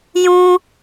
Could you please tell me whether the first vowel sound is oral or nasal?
nasal